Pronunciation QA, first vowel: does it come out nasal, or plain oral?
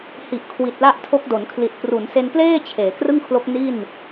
oral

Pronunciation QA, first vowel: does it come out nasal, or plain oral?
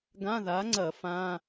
nasal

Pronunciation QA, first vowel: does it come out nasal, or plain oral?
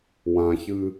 nasal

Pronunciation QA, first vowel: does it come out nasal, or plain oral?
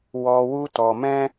oral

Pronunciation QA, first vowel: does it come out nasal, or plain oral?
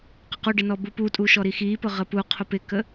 oral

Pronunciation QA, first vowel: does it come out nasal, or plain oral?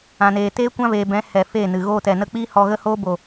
nasal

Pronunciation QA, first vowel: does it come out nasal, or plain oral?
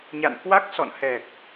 oral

